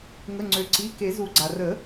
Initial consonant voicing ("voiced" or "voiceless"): voiced